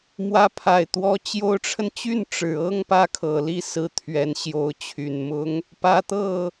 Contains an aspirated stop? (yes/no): yes